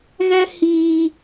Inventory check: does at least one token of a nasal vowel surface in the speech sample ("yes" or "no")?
no